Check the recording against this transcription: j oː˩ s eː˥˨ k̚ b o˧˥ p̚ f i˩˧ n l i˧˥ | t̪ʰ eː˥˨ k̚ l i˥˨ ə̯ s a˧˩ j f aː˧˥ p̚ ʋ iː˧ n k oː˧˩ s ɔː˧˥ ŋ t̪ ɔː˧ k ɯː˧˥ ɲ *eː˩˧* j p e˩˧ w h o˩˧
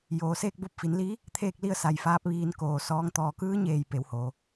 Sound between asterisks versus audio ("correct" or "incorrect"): incorrect